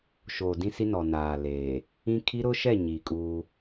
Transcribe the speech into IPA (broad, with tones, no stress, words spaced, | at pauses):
ʃoː˨dĩ˦si˦ nɔ˨ naː˨leː˨ | ĩ˦ kʰi˦ɾʊ˦ʃɛ˦˨ ɲiː˨kʼuː˦